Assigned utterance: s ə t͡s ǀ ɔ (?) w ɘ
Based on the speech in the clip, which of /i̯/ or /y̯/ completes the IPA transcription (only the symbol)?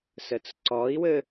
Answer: i̯